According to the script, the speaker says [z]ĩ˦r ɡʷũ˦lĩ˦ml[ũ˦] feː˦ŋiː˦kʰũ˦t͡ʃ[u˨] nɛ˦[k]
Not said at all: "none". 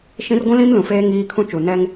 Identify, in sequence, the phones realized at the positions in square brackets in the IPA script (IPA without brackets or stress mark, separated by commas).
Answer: ʃ, ũ˨, u˨, ŋ